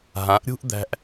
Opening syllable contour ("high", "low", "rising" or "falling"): rising